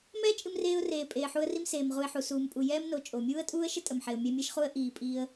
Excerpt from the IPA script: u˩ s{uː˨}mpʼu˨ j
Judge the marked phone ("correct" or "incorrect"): correct